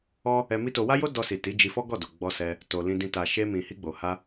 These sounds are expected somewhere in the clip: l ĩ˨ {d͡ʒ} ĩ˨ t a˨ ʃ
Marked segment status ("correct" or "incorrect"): incorrect